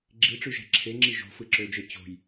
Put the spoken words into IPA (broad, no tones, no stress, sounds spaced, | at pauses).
ɡ͡ǁ i ʈ͡ʂ y ʒ æ̤ ǁʰ e ŋ͡ǁ i ʒ o̤ f ɯ ǁ ø d͡ʒ e t͡ɕ o̤ j